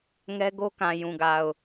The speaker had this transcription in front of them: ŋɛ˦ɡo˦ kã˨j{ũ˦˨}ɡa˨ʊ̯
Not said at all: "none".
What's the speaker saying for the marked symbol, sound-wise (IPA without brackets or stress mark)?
ũ˨